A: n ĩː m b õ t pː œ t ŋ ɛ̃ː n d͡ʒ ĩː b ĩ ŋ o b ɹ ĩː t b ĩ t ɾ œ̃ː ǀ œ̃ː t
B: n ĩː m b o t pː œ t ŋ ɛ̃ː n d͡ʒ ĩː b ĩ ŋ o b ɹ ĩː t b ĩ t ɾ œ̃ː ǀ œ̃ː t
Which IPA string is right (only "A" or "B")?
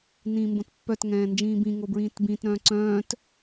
A